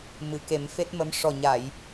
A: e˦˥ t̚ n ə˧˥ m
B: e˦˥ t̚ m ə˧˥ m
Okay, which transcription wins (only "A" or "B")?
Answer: B